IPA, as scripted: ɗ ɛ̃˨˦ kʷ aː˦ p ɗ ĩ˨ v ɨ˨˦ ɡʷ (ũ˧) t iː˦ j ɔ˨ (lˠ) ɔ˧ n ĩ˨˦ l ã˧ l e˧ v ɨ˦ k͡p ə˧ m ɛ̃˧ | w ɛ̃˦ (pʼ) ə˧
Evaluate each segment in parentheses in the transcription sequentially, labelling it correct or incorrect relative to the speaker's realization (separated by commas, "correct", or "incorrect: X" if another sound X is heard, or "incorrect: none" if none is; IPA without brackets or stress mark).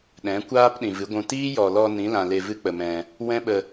correct, incorrect: l, incorrect: ɓ